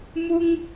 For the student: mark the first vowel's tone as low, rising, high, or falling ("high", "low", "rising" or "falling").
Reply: high